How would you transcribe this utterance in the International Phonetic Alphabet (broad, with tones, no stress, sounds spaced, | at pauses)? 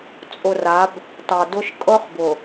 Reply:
t͡sʼ ʊ˨ r a˨˦ b | t ɑ˨ d ʊ˦ ʃ kʼ ɤ˦ χ b ʊ˨